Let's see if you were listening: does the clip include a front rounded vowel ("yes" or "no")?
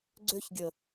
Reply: yes